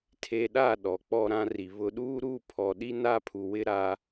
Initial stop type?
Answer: aspirated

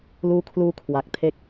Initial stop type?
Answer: aspirated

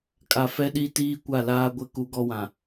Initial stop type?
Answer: ejective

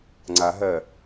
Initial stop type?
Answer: click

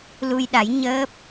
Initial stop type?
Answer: implosive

